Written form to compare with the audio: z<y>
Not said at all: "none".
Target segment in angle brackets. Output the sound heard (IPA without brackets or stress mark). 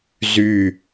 y